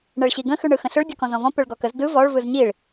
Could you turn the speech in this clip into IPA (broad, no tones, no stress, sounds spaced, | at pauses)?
ɳ ɛ ɭ ɕ i ɡ ə̃ x ʉ ɳ ɯ x ə̃ ɬ ʏ ɭ dʲ ɔ k ɔ̃ z ɔ̃ v ɔ̃ p ʏ ɭ ɡ ɔ k ə z d ɯ v ɔ ɭ v ɯ z ɲ i ɭ